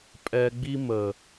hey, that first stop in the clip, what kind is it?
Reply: ejective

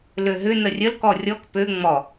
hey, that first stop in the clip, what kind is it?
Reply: plain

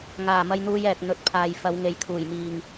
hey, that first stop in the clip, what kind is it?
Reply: plain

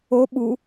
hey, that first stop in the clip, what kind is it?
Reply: implosive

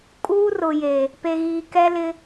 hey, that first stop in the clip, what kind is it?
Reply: ejective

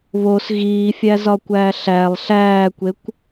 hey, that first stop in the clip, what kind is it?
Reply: plain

